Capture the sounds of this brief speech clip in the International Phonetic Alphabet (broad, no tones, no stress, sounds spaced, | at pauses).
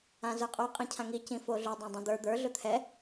ã z ə˞ qʼ o qʼ ĩ cʰ ã ŋ i c ĩ f o ɮ ɵ dˤ ã dˤ õ d̪ ə˞ d̪ ə˞ ɮ ɵ t̪ʰ ɛ